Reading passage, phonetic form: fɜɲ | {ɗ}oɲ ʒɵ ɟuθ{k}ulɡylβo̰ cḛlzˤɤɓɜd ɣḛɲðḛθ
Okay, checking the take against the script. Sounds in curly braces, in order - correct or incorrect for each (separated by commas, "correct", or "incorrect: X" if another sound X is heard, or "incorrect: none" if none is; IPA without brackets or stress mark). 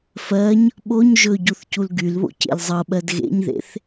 incorrect: ɓ, incorrect: c